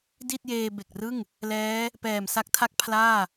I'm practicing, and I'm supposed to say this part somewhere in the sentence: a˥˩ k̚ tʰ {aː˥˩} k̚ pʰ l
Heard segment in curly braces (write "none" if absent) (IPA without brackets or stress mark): a˥˩